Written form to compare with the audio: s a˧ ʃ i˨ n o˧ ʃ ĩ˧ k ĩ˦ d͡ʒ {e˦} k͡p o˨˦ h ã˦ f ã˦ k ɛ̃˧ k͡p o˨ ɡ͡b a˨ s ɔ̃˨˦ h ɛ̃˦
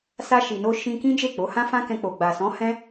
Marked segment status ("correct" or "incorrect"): incorrect